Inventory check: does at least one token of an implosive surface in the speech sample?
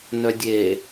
no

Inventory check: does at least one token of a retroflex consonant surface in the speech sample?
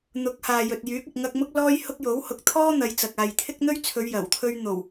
no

